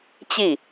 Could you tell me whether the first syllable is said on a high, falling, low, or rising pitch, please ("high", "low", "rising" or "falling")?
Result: falling